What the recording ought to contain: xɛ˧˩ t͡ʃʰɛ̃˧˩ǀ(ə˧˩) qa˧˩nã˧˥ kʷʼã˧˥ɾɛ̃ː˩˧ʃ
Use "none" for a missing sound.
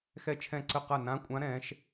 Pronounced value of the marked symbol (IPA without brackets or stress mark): ə˧˩